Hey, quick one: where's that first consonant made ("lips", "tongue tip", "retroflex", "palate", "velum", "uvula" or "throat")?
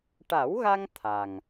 retroflex